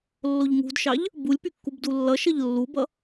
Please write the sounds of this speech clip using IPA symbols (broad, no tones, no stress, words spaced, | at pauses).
lːoʎŋṳdʃɑʎ | bulʲpy kːubdulːʌʃʌʎ lːubʌ